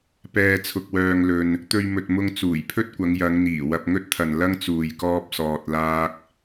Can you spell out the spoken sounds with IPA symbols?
p ɛː˧ t͡sʰ ʊ˧ k̚ w œː˧ ŋ l ɵ˧ n | t̪ ɵ˧ ɥ m ɵ˨ t̚ m ʊ˧ ŋ t͡s uː˨˩ j pʰ ɵ˥ t̚ kʷ ɐ˨˧ ŋ j ɐ˨˧ ŋ n̪ iː˨˩ w ɐ˧ p̚ ŋ ɵ˥ t̚ t̪ʰ ɐ˨ n l ɐ˥ ŋ t͡s uː˨ j k ɔː˥ p̚ s ɔː˧ t̚ l aː˥ k̚

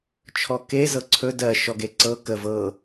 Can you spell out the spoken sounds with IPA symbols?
t͡ʃʰ ɔ k e z ɤ ǀʰ ɵ d ɜ ʃ ɔ ɡ e ǀ ɤ k ə v ɤ

